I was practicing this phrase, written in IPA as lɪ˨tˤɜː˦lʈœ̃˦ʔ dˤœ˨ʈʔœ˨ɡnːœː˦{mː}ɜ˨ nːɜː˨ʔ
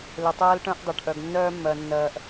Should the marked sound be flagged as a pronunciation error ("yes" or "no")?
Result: no